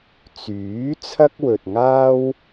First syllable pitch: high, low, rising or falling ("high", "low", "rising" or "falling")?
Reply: rising